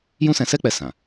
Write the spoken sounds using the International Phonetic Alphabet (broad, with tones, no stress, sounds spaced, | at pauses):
j ũ˦ s ɛ̃˧ s ɛ˦ k͡p ɛ˧ s ã˨